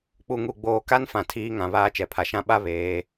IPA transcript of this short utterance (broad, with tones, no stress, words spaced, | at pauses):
k͡pu˨ŋu˨ ɡ͡boː˨ ka˦n fã˨ tʰiː˦ŋã˨ βaː˦t͡ʃɛ˨pʰa˨ʃã˦ ɓa˦ βeː˨˦